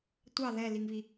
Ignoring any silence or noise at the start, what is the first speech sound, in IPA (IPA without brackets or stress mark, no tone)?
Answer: tʷ